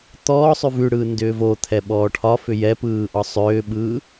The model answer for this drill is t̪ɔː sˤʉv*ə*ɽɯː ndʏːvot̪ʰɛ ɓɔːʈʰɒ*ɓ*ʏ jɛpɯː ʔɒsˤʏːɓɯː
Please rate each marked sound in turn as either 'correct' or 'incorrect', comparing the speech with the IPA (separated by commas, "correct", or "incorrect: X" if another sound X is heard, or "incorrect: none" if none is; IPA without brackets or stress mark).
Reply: incorrect: ʉ, incorrect: f